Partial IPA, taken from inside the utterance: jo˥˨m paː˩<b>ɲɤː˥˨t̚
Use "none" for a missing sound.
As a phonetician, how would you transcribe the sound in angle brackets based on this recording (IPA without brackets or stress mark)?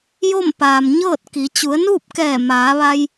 m